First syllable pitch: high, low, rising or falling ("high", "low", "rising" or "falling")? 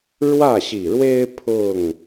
falling